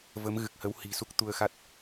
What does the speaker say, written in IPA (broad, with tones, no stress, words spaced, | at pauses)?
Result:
və˨˦mɣɨ˨˩k̚hə˨˦whi̤˨˩ su˦˥k̚ t̪u˧ə̯xa˦˥t̚